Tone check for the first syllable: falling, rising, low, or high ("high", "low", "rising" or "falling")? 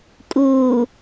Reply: low